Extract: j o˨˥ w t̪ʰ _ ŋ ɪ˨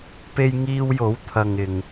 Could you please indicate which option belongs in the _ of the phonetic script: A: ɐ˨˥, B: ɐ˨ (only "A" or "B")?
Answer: B